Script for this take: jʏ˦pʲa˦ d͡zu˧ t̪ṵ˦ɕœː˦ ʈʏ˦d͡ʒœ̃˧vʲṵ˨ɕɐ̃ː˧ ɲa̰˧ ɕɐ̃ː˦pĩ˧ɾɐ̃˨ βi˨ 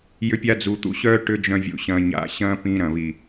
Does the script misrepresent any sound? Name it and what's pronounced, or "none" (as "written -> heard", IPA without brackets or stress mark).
none